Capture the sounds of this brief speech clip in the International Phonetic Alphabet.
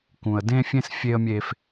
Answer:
kũ˨ə̯dẽ˦fʲẽ˦s fʲe˦ə̯mʲe˦f

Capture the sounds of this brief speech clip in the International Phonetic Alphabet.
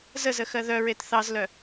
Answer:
zəzəxɜ ðœɹet θɑzlœ

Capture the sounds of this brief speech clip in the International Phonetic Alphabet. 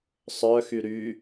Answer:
sˤœxy ɾy

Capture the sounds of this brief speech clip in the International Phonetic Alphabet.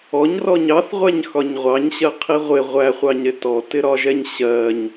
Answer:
ɔɲrɔɲ ɑθʁʷæɲxɒɲ ʁʷɑɲɕɜqʰi ʁʷɪ ʁʷæχʷɑɲɾɪ tɔtɪɾɒʒɛɲ ɕɜɲ

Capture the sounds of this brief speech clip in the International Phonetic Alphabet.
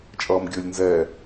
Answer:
t͡ʃʼʌːmɡʲəːlʲnzɛː

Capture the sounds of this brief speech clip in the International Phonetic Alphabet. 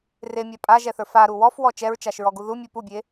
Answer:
remʲa pʼaʒɛθə˞ faɾu wɔfwɔ t͡ʃɛɹt͡ʃaʃɹɔɡu ðumʲu pubʲe

